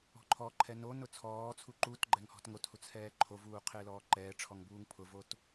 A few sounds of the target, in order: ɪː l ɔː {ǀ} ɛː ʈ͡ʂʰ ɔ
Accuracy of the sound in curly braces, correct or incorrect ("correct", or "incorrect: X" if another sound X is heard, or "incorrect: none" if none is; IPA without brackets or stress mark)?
incorrect: ǃ